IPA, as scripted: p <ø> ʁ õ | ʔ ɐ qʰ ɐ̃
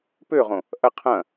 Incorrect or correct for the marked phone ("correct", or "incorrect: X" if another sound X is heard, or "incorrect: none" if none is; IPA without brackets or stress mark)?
correct